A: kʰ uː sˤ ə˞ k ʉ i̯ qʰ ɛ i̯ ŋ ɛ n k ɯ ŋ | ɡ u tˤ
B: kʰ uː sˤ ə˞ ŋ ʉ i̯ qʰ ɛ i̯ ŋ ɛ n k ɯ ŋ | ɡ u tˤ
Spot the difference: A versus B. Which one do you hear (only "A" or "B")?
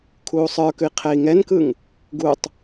A